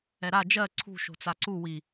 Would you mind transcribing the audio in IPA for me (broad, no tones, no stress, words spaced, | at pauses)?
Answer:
ɛɾa d͡ʒɜ ǀʰṳ ʃo̤t͡saǀu wi